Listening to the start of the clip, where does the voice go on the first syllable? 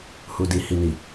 low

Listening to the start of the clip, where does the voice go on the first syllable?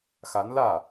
rising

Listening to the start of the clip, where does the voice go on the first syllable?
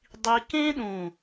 high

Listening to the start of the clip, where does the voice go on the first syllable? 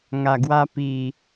low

